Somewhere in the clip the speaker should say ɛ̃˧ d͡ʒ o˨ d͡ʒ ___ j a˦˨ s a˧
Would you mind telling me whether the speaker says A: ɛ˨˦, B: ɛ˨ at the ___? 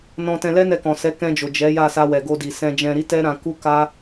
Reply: A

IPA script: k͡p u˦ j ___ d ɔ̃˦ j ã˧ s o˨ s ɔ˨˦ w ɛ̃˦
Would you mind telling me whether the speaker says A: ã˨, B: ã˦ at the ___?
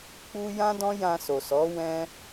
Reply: B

